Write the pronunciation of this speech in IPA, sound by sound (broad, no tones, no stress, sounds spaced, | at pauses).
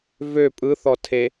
v ø pʼ ɯ θ ɔ tʰ e